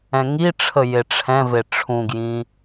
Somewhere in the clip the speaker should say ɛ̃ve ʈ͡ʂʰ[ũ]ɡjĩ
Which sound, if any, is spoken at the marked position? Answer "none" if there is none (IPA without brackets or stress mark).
ũ